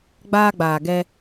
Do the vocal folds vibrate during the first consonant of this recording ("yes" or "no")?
yes